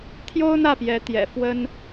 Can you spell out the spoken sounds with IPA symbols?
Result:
t̪ʰjo˥ʊ̯n̪ä˥˩pjɛ˧˥ t̪jɛ̰˨˩ fwə˥n

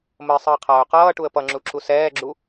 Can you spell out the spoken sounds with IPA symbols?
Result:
məɪ̯sˤəː qʰʌːʊ̯qʌːʈuə̯ pʌŋ͡ǁu ǁusɛːɡ͡ǁu

